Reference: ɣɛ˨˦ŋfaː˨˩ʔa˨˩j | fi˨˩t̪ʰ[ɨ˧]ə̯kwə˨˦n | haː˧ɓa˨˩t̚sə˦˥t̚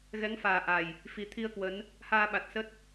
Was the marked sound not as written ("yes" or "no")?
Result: yes